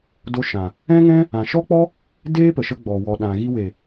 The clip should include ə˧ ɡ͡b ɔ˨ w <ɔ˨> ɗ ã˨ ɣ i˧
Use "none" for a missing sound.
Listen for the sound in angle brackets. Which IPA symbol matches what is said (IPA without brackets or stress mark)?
ɔ˨